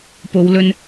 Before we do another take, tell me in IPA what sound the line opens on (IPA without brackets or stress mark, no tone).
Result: p